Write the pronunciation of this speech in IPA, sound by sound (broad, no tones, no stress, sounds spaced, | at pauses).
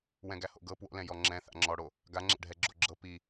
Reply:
w ɛ̃ ɡ æ h o̰ ɡ ɤ p w o̰ l ɛ̃ j ɔ ŋ͡ǁ ɛ̃ θ a̰ ŋ͡ǁ ɔ ɽ o | ɡ a ŋ͡ǁ ɛ̰ ɖʱ ɛ ɡ͡ǁ o ɡ͡ǁ ɤ p i